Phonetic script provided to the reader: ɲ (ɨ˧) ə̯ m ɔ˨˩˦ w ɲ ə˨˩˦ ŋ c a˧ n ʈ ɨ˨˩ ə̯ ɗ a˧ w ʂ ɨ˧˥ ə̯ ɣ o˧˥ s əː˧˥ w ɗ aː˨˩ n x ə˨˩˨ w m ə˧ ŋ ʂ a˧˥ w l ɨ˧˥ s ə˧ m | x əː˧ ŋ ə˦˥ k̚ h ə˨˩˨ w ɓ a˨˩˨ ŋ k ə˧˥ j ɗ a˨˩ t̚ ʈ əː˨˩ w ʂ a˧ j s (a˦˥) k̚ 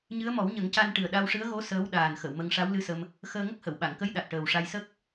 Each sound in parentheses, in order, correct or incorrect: incorrect, incorrect

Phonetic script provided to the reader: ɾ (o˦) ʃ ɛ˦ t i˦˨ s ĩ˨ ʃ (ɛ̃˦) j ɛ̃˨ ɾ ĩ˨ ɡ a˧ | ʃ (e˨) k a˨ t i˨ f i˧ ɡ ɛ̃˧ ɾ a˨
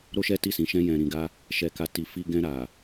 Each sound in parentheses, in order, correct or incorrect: correct, incorrect, incorrect

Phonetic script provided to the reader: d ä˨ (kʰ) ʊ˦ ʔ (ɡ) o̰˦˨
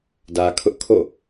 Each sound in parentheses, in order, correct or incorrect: correct, incorrect

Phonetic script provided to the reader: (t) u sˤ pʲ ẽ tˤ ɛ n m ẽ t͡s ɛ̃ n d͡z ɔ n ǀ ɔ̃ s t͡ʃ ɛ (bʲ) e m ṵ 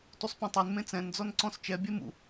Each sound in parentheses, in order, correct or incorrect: correct, correct

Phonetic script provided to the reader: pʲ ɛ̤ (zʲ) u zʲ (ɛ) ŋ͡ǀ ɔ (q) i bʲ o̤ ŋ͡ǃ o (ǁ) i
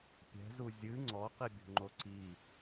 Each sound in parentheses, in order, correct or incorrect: incorrect, incorrect, correct, incorrect

